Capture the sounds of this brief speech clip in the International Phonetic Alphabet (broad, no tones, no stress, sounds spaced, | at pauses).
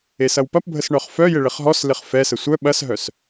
e s ɐ w p ɐ p bʱ ə s ɳ œ χ f œ j ɪ ɭ ɪ χ ɦ ɔ s l ɪ χ f ɛ s ə sʷ œ ɓ ɐ s ɦ œ s